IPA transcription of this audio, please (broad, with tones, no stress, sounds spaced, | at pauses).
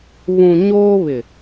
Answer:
β ũ˨ ɲ oː˦ β ɪ˨